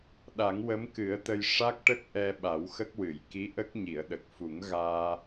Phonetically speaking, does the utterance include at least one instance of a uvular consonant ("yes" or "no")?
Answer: no